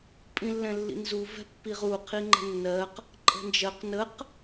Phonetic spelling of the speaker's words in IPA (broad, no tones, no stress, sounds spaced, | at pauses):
pʼ ĩ lː ɛ̃ lː ḭ n z u v ɛ̤ pː i ʁ u qʰ i ŋ͡ǃ ə̤ nː ɜ q | ǃʼ ə̤ n d͡ʒ ɜ q n ə q